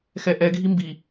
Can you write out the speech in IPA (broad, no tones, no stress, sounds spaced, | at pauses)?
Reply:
x ɛ ʔ ɛ ɡʱ i m b i